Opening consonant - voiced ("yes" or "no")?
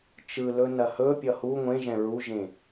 no